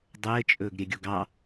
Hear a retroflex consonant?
no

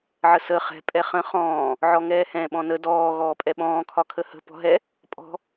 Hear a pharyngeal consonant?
yes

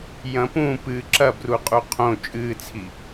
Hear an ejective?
yes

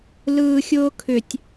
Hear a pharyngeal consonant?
no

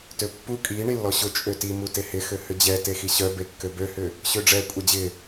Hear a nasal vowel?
no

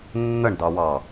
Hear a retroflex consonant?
yes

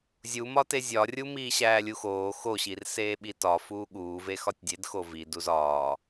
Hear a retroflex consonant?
no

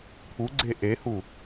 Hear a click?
yes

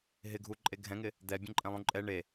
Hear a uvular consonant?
no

